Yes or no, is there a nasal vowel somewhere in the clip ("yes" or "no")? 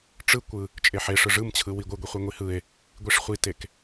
no